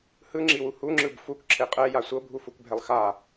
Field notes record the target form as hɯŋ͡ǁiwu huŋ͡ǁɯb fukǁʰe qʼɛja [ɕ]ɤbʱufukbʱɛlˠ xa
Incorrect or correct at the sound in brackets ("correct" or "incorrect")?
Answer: incorrect